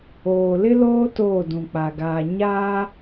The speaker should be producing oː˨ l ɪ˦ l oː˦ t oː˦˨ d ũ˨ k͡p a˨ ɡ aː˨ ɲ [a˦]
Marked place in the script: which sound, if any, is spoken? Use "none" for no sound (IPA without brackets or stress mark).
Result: aː˦